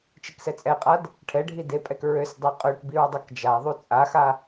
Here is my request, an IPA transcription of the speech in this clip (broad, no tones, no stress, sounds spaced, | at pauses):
t͡ʃ i k s ɛ t͡sʼ ɛ qʼ a d | ʈʰ ɛ ɖʱ i d e pʼ ɛ k ɹ ø s dˤ e qʼ ø ʈ b i ɹ dˤ a k d͡ʒ a ðˤ u t͡sʼ a x a